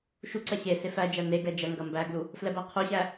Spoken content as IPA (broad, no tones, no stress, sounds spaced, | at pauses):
ʃ u ǀ ɐ ɕ e s e f æ d͡ʒ æ n e ɡ ɛ d͡ʒ ɐ ŋ ɡ ɐ m b æ ɡ l u | f l ɛ b æ qʰ u ɕ æ